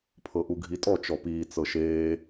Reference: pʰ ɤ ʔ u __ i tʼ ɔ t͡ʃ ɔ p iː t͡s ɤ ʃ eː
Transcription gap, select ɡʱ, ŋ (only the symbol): ɡʱ